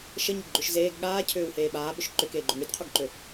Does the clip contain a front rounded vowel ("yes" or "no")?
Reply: yes